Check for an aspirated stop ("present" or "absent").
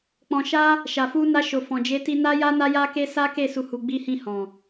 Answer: absent